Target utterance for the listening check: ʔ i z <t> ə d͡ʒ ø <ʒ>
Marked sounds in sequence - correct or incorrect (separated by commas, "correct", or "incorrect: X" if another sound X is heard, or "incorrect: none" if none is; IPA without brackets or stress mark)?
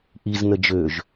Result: incorrect: n, correct